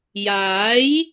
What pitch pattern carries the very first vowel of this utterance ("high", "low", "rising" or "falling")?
rising